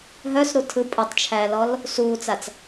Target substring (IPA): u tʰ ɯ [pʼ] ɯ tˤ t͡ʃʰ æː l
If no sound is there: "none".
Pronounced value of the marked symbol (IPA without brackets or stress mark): pʼ